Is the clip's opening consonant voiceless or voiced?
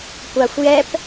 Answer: voiceless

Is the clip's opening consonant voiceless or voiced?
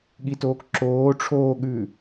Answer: voiced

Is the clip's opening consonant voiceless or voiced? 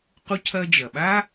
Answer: voiceless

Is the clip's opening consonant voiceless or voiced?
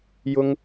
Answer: voiced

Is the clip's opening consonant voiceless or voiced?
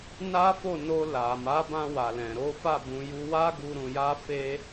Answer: voiced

